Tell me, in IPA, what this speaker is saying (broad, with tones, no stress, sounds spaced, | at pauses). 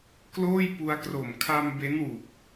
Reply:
k l oː˥˩ j p u˧ a̯ k r o˨˩ m kʰ a˧ m b e˦˥ n w u˨˩ k̚